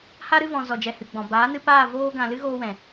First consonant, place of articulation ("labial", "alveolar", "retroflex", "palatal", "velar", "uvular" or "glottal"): glottal